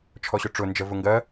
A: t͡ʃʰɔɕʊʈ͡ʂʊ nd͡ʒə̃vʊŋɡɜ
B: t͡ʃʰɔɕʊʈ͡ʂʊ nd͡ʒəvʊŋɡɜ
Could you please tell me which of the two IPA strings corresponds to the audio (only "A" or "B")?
B